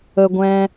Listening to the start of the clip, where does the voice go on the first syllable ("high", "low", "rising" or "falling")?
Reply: high